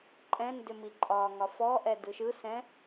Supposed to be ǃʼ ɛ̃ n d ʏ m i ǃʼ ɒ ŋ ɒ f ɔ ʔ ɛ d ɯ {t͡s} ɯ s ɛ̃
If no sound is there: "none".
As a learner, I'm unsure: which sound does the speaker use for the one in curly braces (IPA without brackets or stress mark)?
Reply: ʃ